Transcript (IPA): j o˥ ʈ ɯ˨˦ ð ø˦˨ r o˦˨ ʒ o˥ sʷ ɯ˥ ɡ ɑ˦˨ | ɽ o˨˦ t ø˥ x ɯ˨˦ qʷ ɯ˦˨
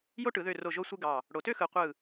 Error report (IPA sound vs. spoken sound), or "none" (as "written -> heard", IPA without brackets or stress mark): none